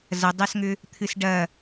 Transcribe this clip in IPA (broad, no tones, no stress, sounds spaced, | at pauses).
z ɐ dˤ ɛ s ŋ ʏ | t̪ʰ ɨ s ɖ ɐ